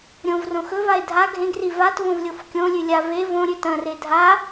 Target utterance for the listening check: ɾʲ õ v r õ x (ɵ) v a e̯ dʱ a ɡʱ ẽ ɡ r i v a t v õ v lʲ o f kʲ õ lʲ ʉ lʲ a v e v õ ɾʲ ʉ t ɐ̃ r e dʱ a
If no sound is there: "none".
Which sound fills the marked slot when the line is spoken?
ɵ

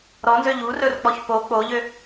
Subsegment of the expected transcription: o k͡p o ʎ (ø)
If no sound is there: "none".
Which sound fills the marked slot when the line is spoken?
ø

